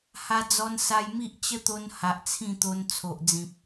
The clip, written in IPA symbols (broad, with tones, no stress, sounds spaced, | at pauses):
h a˧ d͡z ɔ˧ n s a˧ j m i˦ ʔ t͡ɕ ə˦ t̪ o˧ n h a˨ ʔ t͡sʰ ĩ˥˧ t̪ o˧ n t͡sʰ o˨ ʔ d͡z ĩ˨ p̚